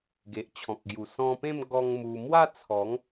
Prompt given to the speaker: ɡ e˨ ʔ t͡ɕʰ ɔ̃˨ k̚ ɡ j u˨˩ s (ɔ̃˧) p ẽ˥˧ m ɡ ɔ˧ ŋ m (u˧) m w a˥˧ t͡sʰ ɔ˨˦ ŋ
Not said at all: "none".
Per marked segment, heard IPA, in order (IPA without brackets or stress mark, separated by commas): ɔ̃˧, u˧